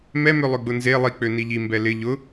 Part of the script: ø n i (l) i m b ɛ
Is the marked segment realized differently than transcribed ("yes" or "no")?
yes